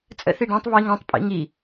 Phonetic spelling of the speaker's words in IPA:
t͡sʼ ə̰ θ i ɖ ɛ̃ tˤ β i ŋ ã tˤ pʼ ḭ ŋ i

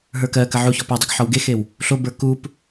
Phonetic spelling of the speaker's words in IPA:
ɦ ə˞ k ɜ k ə ʕ u ç ɔ p o dˤ ʏ ɡ ħ ɔ w ɡ e x e w | ɬ o b ə˞ k u p

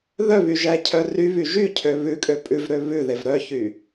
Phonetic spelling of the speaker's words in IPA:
ð œ β y ʒ æ cʰ œ r y β y ʒ y cʰ ø β ʉ kʼ ø pʼ ʉ v ɾ ø β ʉ ð e v ɾ œ ç y

